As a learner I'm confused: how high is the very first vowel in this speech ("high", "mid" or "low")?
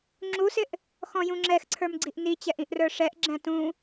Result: high